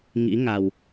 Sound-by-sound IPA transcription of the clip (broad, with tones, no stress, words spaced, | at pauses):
ŋḭ˧˥ŋa˨˩w